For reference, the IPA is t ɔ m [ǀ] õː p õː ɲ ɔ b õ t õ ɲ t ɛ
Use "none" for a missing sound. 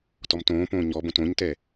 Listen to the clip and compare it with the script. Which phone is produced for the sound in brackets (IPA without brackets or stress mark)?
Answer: t